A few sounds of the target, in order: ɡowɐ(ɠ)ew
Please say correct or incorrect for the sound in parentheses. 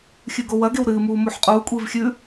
incorrect